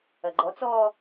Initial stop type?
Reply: click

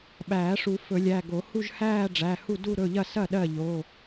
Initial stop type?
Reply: implosive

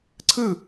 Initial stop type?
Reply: click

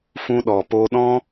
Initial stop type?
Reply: implosive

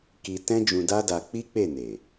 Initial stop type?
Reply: plain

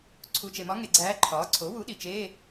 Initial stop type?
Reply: click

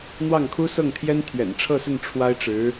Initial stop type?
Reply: aspirated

